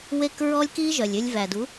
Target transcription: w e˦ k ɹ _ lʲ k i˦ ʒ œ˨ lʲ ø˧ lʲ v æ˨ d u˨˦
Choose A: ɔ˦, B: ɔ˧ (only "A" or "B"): A